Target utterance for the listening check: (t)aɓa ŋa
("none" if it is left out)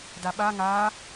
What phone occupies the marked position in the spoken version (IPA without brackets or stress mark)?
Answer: d